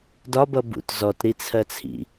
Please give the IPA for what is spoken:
d ɒ b ʌ b ṵ t z ɔ t ɾ i t͡sʰ ɜ t͡sʰ ḭ

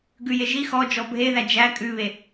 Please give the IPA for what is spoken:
ɡ ʉ j e ʒ i x ɔ d͡ʒ ɔ bʱ e ð æ d͡ʒ æ kʼ ʉ β e

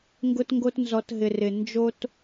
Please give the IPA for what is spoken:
ŋ ɡ ʊ˦ t ŋ ɡ o˦ t n z ɔ˧ t ɦ ɪ˨ r ɪ˨ n d͡ʒ o˦ t

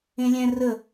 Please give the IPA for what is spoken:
ẽ lʲ ɛ̃ r ə

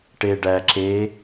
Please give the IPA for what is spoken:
ʈ e ɖ æ ǁ e

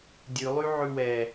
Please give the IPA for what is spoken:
dʲ ʉ lˠ y ʕ ʉ w ɛ

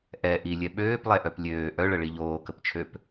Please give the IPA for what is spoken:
ʔ ɛ ʔ i lʲ ɛ ɓ øː p lˠ ɛ ʔ œ p lʲ øː ʔ œ ɭ ə ɭ i ʎ oː k ə p t͡ʃʰ ø p

